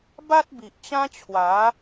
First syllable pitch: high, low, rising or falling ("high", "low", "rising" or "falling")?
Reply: high